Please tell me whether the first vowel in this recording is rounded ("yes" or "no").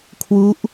yes